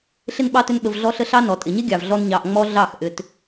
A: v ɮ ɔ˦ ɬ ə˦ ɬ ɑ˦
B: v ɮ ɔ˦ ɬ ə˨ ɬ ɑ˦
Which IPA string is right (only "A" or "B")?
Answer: A